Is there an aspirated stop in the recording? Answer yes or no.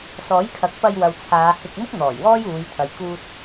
yes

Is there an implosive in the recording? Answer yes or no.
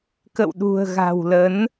yes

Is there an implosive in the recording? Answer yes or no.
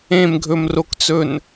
no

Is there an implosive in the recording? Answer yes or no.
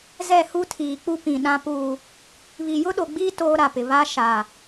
yes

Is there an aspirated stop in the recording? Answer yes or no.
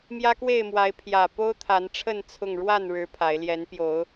yes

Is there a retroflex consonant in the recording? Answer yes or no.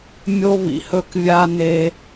no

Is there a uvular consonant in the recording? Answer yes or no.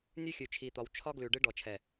no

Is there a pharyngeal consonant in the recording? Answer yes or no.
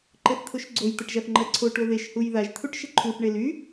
no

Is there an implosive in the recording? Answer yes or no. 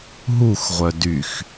no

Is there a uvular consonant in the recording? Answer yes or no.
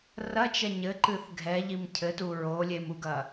no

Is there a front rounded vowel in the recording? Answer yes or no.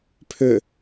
yes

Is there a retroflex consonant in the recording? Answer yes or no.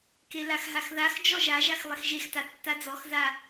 no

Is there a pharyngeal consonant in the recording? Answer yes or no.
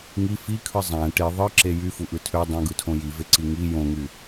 no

